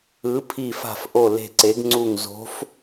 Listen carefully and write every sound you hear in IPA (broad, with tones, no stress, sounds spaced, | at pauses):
ɯ˧˥ pʰ i˦˨ f a̤˦˨ f ʔ o˦˨ l e̤˦˨ ǀ e˧˥ ɡ ŋ͡ǀ u˦˨ ŋ z o̤˧˥ f